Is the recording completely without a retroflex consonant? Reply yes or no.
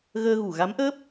yes